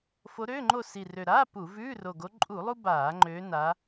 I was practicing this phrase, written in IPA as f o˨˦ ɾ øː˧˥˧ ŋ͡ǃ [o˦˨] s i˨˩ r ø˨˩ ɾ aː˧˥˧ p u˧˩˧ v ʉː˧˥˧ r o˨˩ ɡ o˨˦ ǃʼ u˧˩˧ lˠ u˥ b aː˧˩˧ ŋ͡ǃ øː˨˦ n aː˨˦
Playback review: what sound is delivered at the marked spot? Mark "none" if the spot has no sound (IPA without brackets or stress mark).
o˦˨